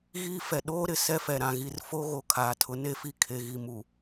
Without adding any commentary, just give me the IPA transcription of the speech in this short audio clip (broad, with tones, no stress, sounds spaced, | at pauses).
ɣ iː˦ f ɛ˨ ɗ oː˦ ɾ ɪ˨ s ɛ˦ f ɛ˨ ɾ ã˨ ɣ i˨ r f o˦ ɣ o˨ kʰ aː˨ tʰ ʊ˨˦ n e˦ f i˦˨ kʰ e˨ ɣ i˨ m u˨